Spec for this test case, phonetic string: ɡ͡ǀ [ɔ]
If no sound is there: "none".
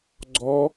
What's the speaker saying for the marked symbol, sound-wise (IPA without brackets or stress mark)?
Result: ɔ